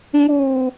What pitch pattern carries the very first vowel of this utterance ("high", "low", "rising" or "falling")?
low